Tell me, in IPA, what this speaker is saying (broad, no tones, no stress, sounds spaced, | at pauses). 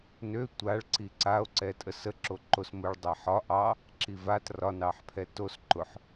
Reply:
n ø tʷ a ɭ ǀ i ǀ a o̯ ǀ ɛ tʼ ə s ə ǁ o ǃ o s m ʊ ɭ dˤ ɛ ħ ɒ ʔ ɑ | ǁ i v a t r ɒ n ɑ ħ pʰ ɛ t o s ǃ ʊ ħ